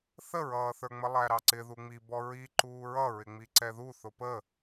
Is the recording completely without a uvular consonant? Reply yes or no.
yes